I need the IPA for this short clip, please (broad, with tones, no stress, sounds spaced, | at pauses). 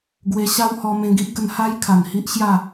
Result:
ɡ w e˧ ɕ a˦ w h ɔ˧ m ẽ˧ ɡ i˦ ʔ ɡ ə˧ n h a˦ j kʰ a˨˩ n h i˦ ʔ ɕ j a˥˧